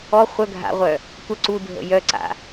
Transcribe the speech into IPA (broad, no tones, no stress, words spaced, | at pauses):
ɔ χʷœ ɡʱa̰ʁʷœ | tʷə ǀudʱə̰ jœǀa̰